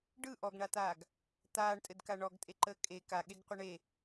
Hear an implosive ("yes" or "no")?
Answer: yes